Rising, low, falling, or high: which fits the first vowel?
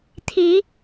rising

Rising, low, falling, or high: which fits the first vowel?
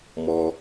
low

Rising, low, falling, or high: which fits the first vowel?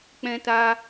high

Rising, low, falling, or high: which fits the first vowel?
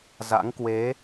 rising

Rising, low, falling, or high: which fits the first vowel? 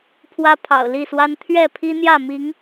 high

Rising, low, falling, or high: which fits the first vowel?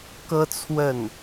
high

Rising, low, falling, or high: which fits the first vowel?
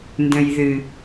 low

